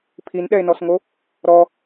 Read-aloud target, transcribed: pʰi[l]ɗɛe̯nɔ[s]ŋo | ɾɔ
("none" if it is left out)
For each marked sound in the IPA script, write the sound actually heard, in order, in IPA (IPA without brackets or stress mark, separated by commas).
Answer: n, s